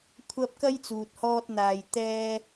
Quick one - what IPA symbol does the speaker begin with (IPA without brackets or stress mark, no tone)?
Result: kʷʰ